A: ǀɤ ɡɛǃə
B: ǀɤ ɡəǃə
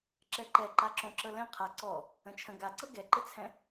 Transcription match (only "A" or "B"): A